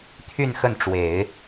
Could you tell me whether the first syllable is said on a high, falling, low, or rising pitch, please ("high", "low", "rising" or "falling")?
falling